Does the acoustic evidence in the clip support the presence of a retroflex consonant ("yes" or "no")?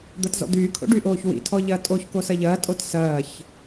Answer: yes